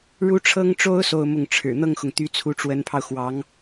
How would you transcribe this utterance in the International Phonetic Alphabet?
ɻ u˥ ʈ͡ʂʰ ɤ˥ ŋ ʈ͡ʂ o˥ ʊ̯ s o˥˧ ʊ̯ m ʊ˥˩ ŋ ʈ͡ʂʰ ɻ̩˨˩ n̪ ɤ˥˩ ŋ x ʊ˩ ŋ t̪ y˧˥ t͡sʰ u˧˥ ʈ͡ʂ w ə˧˥ n pʰ ɑ˧ ʊ̯ x w ɑ˧˥ ŋ

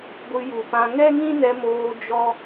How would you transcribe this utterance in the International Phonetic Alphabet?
ɡʷ ɨ˧ j u˨ p ã˧ ŋ ɛ˦ ŋ ĩ˦ n ɛ˧ m oː˧ d͡ʒ ɔ˦

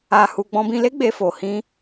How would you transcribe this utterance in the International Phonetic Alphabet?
a˧ h u˧ ɡ͡b ɔ̃˧ b ĩ˧ l e˦ ɡ͡b e˧ f o˧ h ĩ˦

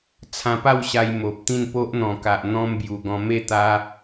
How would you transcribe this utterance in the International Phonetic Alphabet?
t͡sʰ ã˧ p a˥˧ w ɕ a˧ j m o˨ p̚ t̪ ĩ˥˧ n p o˦ ʔ n̪ ɔ̃˨˩ k a˨ ʔ n̪ ɔ̃˦ m b j u˨˩ ɡ ɔ̃˧ m e˥˧ t̪ a˧

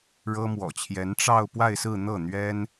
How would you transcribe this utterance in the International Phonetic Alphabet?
ɻ ɤ˥ m w ɔ̰˨˩ t͡ɕʰ j ɛ˧˥ n ʈ͡ʂ ɑ˥˧ ʊ̯ p w a˥˧ ɪ̯ s ɹ̩˥˧ n̪ ɤ˥˩ n̪ ɥ ɛ˥ n

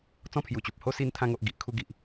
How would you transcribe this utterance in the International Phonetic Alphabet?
t͡s ɔ̃˥˧ pʰ j u˨˩ t͡ɕ u˨ p̚ h o˦ s i˧ n t̪ʰ ã˧ ŋ o˨ ʔ ɡ i˨ ʔ kʰ u˥˧ ɡ i˨ ʔ

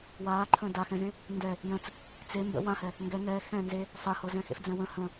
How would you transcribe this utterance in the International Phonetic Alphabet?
w aː ǃʰ ə̃ː d a x ɛ̃ z ẽ | n d ɛ | j ə̃ t͡s | t͡s e m b ə̰ w ã h ɛ | ŋ ɡ ɛ ŋ ɛː x ɛ̃ n z e | f a h ɤ z ɛ̃ x ḛ f d͡z ɛ̃ w ə̃ h ə̃

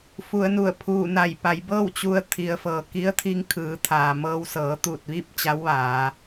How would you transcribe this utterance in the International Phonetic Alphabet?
f u˩˧ ə̯ n u˧˩ ə̯ pʰ uː˧˩ n a˧˩ j p a˩˧ j b ɤː˥˨ w t͡ɕ u˧ ə̯ t̪ʰ i˩˧ ə̯ f ɤː˩ k i˧˥ ə̯ t̪ʰ i˧˥ ŋ kʰ ɯː˩˧ t̪ʰ aː˩ m ɤː˧ w s ɤː˩˧ t̪ uː˧˩ t̚ ʋ i˥˨ p̚ t͡ɕ a˧˥ w ʋ aː˩˧

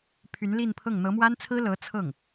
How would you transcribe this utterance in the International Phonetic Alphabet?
pʰ y˧˥ n l i˥˧ n pʰ ɤ˥˩ ŋ n̪ ɤ˧˥ m w a˥ n t͡sʰ ɹ̩˥ l ɤ˧˥ t͡sʰ ɤ˥˩ ŋ

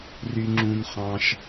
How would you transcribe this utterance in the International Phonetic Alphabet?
r y˥ ŋ͡ǁ ũ˥ n χ ɑ̃˥ ʃ

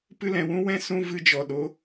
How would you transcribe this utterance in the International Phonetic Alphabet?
p ɨ˧ l ɛ̃˨ w ũ˦ w ɛ̃˦ s ũ˦ v ɨ˧ d͡ʒ ɔ˨ ɗ o˨˦

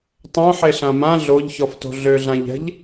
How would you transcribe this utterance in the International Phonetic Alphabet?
tˤ œ̃ ħ e ɬ ã m ã ɮ o ʎ ç ɔ f t o̤ ɮ ø ɮ ã ʎ ɛ̤ ʎ

